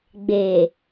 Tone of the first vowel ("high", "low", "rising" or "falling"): low